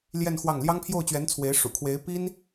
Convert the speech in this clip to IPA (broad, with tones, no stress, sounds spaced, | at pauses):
l j ɛ˥˧ n x w ɑ˥˩ ŋ l j ɑ˥ ŋ pʰ j o˥˩ ʊ̯ t͡ɕ ɥ ɛ˧˥ n t͡sʰ w e˧˥ ɪ̯ ʂ ṵ˨˩ kʰ w e˧˥ ɪ̯ p i˥ n